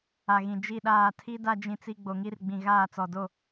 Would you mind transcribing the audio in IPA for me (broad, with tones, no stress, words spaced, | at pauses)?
a˨ɣĩ˨ d͡ʒi˦˨ɗaː˦˨ tʰi˦da˦ d͡ʒĩ˦t͡si˦ ɡ͡bo˨ŋi˦rɡ͡bĩ˨ ɣaː˦˨t͡sɔ˨do˦˨